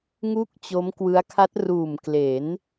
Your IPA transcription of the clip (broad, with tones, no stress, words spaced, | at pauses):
ŋu˥˩k̚t͡ɕo˦˥mkwɯ˦˥a̯ kʰa˦˥t̚ruː˨˩mkle˩˦n